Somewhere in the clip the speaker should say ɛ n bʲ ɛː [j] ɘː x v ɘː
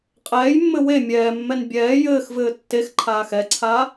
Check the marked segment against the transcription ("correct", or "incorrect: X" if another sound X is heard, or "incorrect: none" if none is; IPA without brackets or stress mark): correct